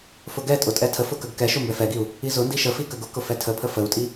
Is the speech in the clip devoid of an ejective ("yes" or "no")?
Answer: no